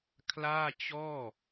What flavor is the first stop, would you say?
aspirated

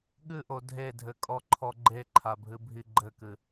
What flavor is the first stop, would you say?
implosive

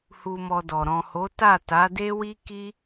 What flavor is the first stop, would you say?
plain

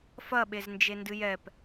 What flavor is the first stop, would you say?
implosive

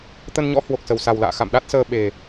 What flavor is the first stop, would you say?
plain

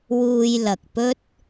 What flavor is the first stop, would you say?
plain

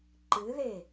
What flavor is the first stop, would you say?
click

